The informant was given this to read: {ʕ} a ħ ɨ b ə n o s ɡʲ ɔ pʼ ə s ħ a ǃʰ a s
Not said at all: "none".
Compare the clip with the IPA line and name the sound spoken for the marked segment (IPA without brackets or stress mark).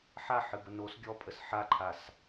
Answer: ħ